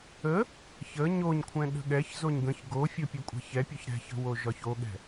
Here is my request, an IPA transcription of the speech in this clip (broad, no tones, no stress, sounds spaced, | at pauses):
ə | ç ə ɲ o ɲ kʷʰ ɛ̃ ɗ ə̤ ɠ ɛ ç z o ɲ ɡ ə̃ ç ɡ o fʲ o pʲ ʉ kʷʼ ɛ̤ ç ɛ pʲ ɒ ç ɾ ɛ̤ ç ə̤ w o ʒ ɒ ç o ɠ ɛ̤